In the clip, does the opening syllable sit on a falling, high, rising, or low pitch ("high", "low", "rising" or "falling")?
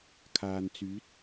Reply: low